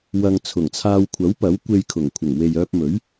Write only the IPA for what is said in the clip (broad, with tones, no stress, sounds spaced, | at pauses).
w ɐ˧ ŋ t͡sʰ ʊ˨˩ ŋ t͡sʰ aː˧ w kʷʰ ɐ˨˥ w p ɐ˨˥ w kʷ e˧ j kʰ ʊ˨˩ ŋ kʷʰ ɪ˨˩ ŋ w e˨ j œː˧ p̚ m ɵ˨˥ ɥ